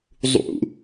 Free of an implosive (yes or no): yes